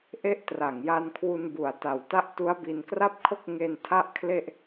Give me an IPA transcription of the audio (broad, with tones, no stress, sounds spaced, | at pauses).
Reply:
ʔ e˦˥ ʔ t r a˨˩ ŋ j a˧ n kʰ w u˧ n b u˨˩ a̯ t a˨˩ w t a˦˥ ʔ t u˦˥ a̯ b i˧ n k r a˥˩ p̚ kʰ o˥˩ k̚ ŋ e˧ n tʰ a˥˩ ʔ kʰ l e˥˩ ʔ